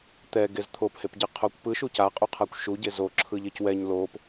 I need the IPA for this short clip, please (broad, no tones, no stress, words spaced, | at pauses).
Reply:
t̪ɛɡez t̪ʰophepɟeqʰokʷ pɯʃu caqʼuqʰakʷ ʃuɟe zoǁʰɯʎec wɛɲ lop